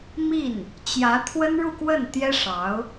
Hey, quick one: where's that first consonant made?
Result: lips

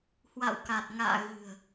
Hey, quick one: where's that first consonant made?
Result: throat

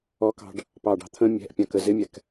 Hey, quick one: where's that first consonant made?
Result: velum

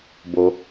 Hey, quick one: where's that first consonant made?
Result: lips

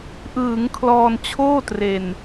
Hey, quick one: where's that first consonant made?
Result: throat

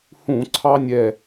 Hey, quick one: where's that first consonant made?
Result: throat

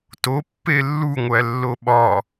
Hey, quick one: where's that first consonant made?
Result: tongue tip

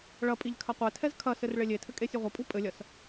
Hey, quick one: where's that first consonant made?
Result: retroflex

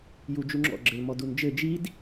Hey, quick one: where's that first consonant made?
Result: palate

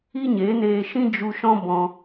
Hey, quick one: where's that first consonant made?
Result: palate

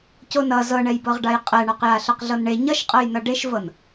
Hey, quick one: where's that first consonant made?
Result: palate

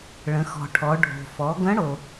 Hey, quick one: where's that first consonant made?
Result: retroflex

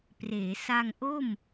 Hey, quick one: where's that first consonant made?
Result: lips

